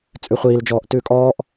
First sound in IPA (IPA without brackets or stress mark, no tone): t͡sʼ